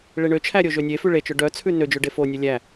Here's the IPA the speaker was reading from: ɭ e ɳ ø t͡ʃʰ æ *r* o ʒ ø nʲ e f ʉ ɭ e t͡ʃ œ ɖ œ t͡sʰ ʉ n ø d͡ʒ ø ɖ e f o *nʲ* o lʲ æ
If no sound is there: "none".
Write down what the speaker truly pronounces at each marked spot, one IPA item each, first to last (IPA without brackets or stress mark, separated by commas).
ɾʲ, nʲ